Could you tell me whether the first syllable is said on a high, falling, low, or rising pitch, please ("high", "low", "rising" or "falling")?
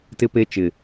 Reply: high